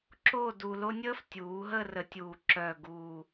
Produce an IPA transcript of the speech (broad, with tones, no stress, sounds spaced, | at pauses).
ǁ o˥˧ d u˧ l o˥ nʲ əː˥ f tʲ uː˩˧ ɦ əː˥˧ r ə˧˩˧ tʲ uː˨˩ ǁ œː˨˩ ɡ uː˨˩